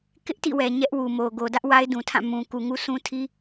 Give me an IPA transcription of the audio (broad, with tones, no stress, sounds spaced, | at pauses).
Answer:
k ɪ˦ ʔ t ḭ˦˨ w ɛ˨ ɲ ɛ˦ ʔ w u˨ m o˨ ɡ o˨ d ä˦ ʔ w a˦ ɪ̯ d ũ˨ tʰ ã˦˨ m ũ˨ k u˨ ŋ u˦ sʰ ũ˦ tʰ i˦